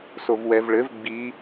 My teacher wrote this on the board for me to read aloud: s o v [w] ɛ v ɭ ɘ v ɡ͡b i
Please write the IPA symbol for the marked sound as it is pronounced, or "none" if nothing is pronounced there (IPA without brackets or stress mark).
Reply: w